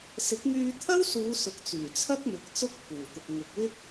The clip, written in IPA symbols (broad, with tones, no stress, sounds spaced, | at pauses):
s ɪ˨˥ k̚ ŋ yː˧ t̪ʰ ɐ˥ w s uː˨˧ s ʊ˨˥ k̚ t͡s yː˨˩ t͡sʰ ɐ˥ k̚ m ɪ˨˥ k̚ t͡s ʊ˥ k̚ pʰ uː˨˩ t̪ ʊ˨ k̚ ŋ ʊ˨ k̚ w ɪ˥ k̚